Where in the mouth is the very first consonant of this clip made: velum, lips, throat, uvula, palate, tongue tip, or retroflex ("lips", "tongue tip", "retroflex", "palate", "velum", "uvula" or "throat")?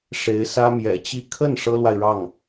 retroflex